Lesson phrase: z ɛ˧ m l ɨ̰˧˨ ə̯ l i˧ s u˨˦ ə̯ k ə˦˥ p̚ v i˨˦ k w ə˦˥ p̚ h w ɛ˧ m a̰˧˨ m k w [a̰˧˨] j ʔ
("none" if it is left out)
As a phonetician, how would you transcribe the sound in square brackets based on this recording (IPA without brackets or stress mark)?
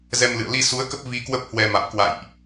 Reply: a̰˧˨